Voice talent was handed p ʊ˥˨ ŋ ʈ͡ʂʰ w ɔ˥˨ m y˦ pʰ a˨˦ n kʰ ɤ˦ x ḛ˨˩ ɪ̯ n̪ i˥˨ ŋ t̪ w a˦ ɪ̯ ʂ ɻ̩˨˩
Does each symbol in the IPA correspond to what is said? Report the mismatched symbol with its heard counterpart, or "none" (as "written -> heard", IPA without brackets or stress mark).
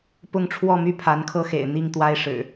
none